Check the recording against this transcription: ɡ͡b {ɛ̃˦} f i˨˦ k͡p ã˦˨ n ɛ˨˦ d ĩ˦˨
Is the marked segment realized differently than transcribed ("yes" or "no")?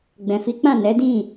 yes